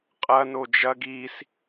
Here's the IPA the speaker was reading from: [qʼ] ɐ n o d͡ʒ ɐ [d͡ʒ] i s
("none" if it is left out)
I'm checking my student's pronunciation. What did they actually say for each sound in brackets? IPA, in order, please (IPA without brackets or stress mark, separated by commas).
qʼ, ɡ